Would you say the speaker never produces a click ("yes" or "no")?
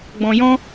yes